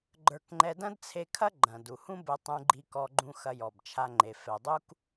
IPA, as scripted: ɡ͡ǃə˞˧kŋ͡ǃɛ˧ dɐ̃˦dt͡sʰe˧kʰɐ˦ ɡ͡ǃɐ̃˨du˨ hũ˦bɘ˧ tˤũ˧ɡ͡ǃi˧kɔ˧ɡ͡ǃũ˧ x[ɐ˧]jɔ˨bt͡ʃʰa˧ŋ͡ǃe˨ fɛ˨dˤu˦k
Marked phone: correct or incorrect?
correct